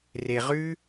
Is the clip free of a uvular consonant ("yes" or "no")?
no